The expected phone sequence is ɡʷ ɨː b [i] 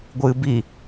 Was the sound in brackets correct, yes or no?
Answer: yes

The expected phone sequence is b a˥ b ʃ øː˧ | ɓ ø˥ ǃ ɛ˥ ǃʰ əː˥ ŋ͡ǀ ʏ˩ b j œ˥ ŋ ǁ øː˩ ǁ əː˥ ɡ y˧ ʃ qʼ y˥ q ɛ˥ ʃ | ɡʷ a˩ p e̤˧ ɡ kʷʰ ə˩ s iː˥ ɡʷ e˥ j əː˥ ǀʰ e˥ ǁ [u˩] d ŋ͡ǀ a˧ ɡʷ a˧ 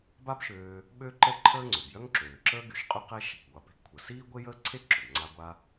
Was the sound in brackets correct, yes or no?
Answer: no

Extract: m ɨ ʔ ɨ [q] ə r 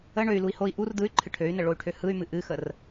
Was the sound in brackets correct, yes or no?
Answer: no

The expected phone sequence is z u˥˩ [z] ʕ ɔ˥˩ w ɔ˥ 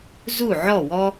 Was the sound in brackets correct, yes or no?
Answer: no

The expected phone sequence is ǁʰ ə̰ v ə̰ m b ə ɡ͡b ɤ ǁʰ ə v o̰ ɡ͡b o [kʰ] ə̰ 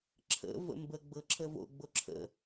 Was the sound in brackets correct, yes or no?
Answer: no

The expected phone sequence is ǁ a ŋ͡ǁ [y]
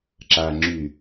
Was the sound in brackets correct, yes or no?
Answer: yes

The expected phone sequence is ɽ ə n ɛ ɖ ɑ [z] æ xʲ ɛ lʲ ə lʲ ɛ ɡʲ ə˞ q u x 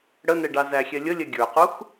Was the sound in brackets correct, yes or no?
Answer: yes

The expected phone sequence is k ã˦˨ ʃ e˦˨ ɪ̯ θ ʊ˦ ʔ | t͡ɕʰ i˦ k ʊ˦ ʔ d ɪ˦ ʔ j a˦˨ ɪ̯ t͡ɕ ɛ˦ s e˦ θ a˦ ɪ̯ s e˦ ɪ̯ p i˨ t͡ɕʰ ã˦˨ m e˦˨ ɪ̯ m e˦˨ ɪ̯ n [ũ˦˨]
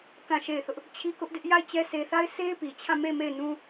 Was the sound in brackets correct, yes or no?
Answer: no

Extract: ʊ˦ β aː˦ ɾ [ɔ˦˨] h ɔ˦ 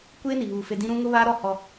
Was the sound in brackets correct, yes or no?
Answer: yes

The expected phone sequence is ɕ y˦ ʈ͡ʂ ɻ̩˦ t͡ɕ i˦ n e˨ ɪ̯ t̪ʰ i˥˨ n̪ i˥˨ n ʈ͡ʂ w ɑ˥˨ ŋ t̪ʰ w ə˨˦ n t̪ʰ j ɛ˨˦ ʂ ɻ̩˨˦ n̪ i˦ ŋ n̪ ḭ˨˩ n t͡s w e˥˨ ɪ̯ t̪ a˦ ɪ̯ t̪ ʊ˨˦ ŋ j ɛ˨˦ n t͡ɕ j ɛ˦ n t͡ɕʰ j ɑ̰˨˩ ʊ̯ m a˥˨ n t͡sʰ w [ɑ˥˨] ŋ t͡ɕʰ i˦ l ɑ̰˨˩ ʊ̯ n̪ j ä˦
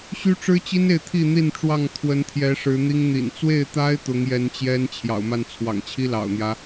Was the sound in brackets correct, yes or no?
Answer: no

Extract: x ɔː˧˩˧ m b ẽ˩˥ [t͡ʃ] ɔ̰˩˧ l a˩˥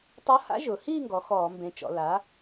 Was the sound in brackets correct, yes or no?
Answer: yes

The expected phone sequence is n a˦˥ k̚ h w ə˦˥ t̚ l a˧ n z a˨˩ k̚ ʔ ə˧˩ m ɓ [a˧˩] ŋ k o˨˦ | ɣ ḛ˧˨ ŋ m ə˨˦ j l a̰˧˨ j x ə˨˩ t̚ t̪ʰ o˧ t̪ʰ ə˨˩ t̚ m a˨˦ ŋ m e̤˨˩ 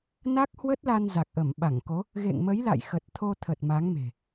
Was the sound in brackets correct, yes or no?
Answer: yes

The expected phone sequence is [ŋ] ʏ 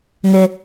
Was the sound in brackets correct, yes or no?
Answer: yes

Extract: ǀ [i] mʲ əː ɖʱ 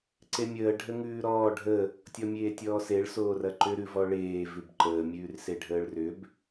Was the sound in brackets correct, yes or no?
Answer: no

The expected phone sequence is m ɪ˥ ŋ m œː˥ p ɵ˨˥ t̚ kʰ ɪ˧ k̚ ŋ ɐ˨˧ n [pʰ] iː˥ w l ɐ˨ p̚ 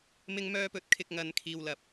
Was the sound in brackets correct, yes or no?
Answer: no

